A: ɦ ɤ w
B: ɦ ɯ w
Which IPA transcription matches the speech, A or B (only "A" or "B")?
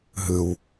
B